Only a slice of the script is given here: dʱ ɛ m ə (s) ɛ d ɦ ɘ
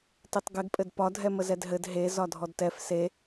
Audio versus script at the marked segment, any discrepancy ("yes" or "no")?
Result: yes